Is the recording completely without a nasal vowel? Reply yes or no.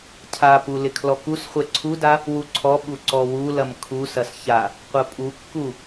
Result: yes